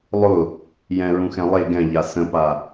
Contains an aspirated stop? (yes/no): no